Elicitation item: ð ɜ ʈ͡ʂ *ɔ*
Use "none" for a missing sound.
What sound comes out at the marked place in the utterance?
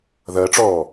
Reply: ɔː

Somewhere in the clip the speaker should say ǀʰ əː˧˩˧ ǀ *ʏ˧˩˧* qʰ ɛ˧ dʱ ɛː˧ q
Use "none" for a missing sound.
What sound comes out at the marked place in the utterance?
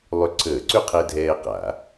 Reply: ʏ˥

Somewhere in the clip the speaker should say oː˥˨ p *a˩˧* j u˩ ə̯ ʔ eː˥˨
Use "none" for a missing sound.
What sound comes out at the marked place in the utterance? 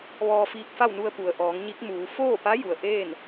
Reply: a˧˥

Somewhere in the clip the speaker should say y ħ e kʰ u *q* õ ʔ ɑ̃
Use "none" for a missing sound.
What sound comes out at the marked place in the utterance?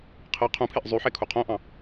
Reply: qʰ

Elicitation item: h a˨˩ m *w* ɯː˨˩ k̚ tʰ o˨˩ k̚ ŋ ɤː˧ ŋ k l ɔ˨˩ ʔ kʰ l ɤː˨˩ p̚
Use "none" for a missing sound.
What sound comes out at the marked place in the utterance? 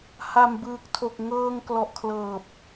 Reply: b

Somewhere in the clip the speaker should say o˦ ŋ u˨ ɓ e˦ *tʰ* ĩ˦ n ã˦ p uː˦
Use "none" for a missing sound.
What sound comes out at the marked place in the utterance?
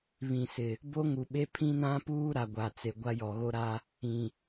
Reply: pʰ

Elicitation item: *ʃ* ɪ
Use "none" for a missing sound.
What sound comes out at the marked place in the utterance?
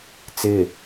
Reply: t͡s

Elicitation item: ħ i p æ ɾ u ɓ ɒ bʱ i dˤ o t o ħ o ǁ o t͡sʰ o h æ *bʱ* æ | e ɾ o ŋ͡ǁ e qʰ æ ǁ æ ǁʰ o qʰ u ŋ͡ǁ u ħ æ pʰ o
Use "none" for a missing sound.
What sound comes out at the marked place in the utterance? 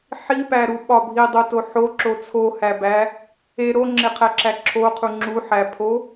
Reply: b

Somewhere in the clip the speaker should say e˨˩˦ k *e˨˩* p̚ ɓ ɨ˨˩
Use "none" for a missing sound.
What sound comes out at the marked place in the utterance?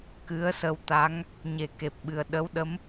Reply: e˨˩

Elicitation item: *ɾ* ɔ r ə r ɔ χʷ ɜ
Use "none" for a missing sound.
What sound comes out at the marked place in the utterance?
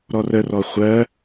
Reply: ɾ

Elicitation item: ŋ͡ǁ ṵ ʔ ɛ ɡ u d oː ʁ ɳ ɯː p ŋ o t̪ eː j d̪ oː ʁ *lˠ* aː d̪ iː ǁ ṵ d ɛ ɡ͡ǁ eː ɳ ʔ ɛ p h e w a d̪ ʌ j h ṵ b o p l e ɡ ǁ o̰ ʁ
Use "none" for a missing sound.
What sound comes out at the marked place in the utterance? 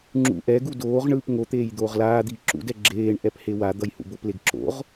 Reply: l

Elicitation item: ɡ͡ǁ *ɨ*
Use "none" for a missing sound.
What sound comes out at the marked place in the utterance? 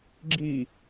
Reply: i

